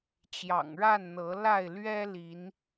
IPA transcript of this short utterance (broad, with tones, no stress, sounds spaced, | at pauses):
t͡ɕ j ɑ̰˨˩ ŋ ɻ a˥˨ n n̪ ɤ˨˦ l a˥˨ ɪ̯ l ɥ ɛ˦ l i˨˦ n